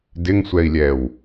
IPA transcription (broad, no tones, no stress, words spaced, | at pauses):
dɪŋsʷɛi̯lʲɛw